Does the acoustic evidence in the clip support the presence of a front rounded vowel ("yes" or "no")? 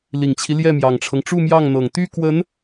yes